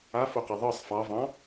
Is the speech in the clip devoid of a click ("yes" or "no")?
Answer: yes